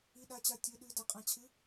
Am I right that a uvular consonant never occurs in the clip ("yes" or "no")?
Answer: no